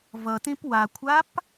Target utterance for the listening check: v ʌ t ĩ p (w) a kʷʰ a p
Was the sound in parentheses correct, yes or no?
yes